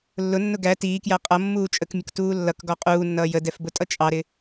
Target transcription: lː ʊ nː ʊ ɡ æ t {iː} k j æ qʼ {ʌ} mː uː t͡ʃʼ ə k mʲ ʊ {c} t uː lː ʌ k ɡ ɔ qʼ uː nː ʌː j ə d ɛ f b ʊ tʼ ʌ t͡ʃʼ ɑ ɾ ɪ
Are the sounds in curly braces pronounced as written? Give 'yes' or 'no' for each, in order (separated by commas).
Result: yes, yes, no